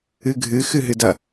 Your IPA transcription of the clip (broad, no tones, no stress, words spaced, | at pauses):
ɨɡʱɨ xɨɦɨdɐ